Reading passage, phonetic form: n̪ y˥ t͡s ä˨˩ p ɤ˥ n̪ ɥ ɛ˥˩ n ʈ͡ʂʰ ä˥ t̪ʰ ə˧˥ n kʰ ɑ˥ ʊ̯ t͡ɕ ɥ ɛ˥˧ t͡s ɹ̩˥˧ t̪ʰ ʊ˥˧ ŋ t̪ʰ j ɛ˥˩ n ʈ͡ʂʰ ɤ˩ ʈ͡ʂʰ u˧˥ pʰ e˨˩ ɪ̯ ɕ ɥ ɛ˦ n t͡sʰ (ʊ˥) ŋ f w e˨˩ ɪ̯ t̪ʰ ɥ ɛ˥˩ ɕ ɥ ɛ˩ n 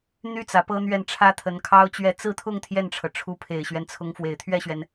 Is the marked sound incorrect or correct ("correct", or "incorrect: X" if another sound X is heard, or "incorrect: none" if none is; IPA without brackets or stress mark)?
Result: incorrect: ʊ˧˥